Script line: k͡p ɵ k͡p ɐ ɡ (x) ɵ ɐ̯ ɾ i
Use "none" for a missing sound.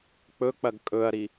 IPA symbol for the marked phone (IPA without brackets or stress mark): kʼ